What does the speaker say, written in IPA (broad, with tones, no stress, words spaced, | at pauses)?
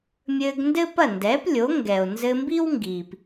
mʲɘː˧ɡndɘ˥pɐ˥˩ ndɛ˩˥plʲo˩˥ ŋɡɛ˩o̯nzɘ˧mbi˥wŋɡiː˩p